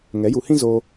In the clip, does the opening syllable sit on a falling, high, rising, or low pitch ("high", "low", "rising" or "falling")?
rising